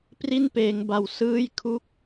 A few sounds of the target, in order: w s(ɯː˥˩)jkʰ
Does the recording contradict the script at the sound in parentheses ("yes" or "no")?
yes